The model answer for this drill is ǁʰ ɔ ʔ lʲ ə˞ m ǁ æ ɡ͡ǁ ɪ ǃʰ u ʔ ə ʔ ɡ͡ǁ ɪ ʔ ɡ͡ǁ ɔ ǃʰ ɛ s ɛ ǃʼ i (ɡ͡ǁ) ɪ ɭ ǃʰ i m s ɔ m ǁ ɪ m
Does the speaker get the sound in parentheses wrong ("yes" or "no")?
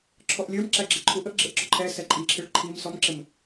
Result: yes